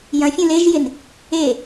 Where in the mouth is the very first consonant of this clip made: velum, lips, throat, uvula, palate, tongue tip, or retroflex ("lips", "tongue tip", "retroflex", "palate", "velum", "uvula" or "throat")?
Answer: palate